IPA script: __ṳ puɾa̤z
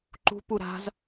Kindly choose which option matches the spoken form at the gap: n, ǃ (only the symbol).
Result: ǃ